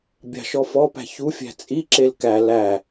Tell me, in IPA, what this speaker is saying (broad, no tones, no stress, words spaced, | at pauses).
bʲɑ̤ʃɔ fɔpæ̤ çufʲæ̤ t͡sʼiǁel kæ læ